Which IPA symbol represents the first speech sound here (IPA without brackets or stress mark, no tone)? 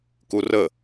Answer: k